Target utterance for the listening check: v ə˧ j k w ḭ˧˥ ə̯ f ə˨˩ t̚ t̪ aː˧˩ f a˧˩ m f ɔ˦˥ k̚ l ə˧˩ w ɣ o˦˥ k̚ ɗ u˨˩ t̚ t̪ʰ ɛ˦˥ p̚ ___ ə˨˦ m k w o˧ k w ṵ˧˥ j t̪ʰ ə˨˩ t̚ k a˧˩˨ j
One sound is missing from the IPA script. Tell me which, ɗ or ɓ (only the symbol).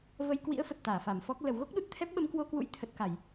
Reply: ɓ